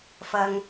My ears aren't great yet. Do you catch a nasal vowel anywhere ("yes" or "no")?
no